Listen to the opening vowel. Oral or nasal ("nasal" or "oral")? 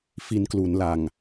oral